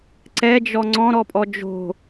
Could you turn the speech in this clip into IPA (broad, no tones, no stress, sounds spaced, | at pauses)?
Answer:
ǀ ɛ d͡ʒ ɔ ŋ͡ǀ ɔ̃ ɾ ɔ pʼ ɔ d͡ʒ o̤